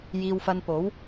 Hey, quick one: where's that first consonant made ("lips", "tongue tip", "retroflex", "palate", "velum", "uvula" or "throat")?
palate